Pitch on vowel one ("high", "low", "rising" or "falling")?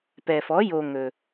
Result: low